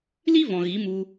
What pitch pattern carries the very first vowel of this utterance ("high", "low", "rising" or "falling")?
high